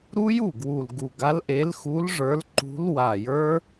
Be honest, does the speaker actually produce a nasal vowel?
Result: no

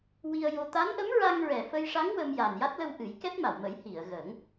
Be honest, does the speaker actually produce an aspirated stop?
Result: no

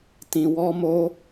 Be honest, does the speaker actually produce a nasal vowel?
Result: yes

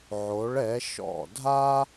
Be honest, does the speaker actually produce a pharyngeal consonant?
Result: yes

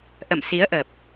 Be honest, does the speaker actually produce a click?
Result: no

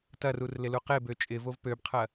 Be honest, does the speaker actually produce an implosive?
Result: no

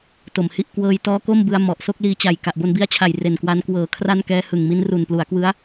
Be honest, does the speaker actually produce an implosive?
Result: no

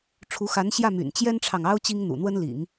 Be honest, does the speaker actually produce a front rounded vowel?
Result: yes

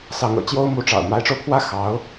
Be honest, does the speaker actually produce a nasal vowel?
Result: no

